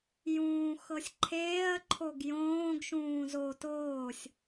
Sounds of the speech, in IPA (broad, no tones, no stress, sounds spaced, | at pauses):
j ũː x ɤ sʲ ǃʰ eː ɐ̯ ǃʰ o ɡ j õː ɡ ʃ ũː z o t oː sʲ